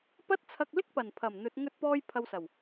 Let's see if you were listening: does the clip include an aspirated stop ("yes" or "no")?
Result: yes